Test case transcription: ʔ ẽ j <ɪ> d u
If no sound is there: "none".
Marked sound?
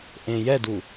ɛ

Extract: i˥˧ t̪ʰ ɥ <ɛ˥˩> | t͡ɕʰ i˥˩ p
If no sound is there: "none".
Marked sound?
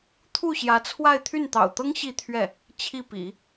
ɛ˥˩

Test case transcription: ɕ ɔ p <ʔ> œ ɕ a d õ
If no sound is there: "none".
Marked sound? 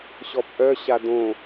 ʔ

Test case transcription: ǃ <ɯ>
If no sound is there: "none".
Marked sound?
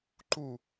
u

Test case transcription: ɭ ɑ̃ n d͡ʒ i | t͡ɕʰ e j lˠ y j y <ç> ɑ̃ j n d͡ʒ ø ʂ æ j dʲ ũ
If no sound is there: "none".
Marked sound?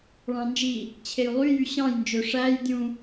ɕ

